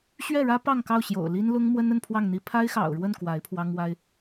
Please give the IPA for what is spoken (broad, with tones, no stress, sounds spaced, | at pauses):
ɕ ɥ ɛ˥˩ ɻ ä˥ p ɑ˥˧ ŋ k ɑ˥˩ ʊ̯ ɕ j o̰˨˩ ʊ̯ l i˥ n l ʊ˥ ŋ m w ə˥ n ə˥˧ n pʰ w ɑ˥˩ ŋ n̪ i˥ pʰ a˥ ɪ̯ x ɑ̰˨˩ ʊ̯ ɻ w ə˥˩ n k w a˧˥ ɪ̯ pʰ w ɑ˥ ŋ w a˥ ɪ̯